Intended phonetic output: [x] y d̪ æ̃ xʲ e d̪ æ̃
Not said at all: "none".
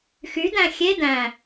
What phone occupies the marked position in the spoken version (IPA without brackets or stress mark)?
x